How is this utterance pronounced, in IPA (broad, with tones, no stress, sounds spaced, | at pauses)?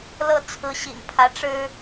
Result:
l ɤ˥˩ t͡sʰ ɹ̩˧˥ ɕ ḭ˨˩ ŋ pʰ ä˧˥ ʈ͡ʂ ɻ̩˥